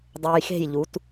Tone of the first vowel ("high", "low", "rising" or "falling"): low